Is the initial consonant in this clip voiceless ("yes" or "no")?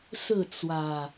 yes